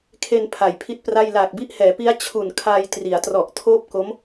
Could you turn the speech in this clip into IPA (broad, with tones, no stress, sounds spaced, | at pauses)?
kʰ e˧ n pʰ a˨˩ j pʰ i˥˩ t̚ p r a˥˩ j l aː˨˩ k̚ b i˦˥ ʔ h ɛː˩˦ p i˦˥ a̯ t͡ɕʰ u˨˩ n kʰ aː˧ j t r i˩˦ a̯ t r ɔ˨˩ ʔ tʰ oː˥˩ p̚ k o˦˥ m